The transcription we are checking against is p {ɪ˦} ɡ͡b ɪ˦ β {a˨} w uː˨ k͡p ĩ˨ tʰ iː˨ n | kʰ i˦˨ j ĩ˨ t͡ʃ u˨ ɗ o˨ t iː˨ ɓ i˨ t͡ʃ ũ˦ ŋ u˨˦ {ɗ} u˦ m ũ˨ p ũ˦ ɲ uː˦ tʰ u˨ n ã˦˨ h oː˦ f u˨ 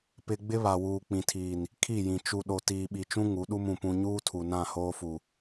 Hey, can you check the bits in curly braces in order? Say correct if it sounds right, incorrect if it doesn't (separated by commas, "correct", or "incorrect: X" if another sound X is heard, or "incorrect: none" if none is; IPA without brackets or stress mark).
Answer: correct, correct, correct